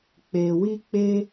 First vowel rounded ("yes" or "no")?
no